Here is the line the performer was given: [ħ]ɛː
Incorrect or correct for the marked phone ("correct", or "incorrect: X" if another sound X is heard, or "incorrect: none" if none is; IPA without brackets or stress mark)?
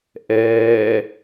incorrect: ʔ